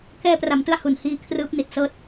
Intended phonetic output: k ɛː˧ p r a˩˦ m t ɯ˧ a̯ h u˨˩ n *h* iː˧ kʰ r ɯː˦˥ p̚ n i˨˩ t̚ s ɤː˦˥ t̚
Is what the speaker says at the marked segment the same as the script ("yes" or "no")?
yes